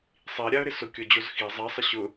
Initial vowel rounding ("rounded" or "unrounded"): unrounded